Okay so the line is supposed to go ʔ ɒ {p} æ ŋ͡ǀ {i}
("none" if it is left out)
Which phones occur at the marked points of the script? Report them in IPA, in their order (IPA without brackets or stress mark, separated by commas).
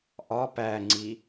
p, i